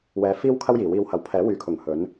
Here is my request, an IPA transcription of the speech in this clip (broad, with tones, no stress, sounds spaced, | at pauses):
w ɛː˨˧ f iː˥ w kʰ ɐ˥ w j iː˨˩ w iː˧ w h ɐ˨˥ w pʰ ɛː˨˥ w yː˨ kʰ ʊ˨˩ ŋ h ɵ˨˥ n